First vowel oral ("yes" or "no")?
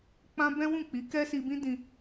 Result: no